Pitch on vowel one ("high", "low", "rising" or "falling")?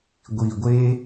low